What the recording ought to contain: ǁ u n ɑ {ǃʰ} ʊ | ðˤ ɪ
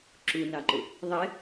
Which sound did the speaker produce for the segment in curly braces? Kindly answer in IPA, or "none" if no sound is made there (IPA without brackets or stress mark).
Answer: ǃ